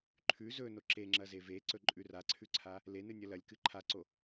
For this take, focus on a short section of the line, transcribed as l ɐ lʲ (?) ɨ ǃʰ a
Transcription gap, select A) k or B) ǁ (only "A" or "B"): A